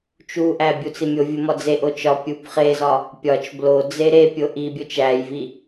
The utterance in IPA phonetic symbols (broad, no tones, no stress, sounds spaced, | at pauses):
t͡ʃ u ʔ æ bʲ u t͡s i mʲ o vʲ u m ɒ d͡z e ʔ o t͡ʃ ɒ pʲ u b χ e z ɒ | pʲ ɒ t͡ʃ b l o d͡z e ɾ e pʲ o ʔ i bʲ o t͡ʃ æ j v i